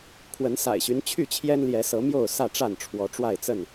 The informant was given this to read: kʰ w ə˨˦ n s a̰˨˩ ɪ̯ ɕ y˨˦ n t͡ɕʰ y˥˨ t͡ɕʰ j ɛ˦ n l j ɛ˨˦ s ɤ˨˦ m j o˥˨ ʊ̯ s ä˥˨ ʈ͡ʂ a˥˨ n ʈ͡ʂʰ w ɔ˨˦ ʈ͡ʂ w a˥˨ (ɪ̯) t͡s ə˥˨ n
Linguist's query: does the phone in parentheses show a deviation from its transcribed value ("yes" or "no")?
no